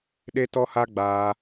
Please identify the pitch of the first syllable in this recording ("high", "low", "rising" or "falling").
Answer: high